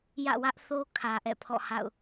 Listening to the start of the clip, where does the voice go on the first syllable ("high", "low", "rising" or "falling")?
falling